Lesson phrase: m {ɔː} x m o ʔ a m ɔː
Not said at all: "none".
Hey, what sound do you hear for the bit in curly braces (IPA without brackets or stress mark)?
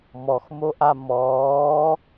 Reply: ɔ